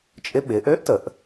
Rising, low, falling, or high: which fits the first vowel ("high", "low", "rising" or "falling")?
rising